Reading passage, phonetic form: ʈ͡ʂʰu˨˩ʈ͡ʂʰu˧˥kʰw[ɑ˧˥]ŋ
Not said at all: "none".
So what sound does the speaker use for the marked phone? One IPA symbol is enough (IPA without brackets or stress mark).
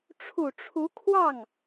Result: ɑ˥˩